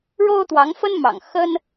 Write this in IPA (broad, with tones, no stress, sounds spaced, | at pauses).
ɻ o˥ ʊ̯ t̪ w ɑ˧˥ ŋ f ə˥ n m ɑ̰˨˩ ŋ x ə˥ n